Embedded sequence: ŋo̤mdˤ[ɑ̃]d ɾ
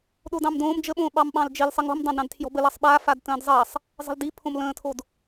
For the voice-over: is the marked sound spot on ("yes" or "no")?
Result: yes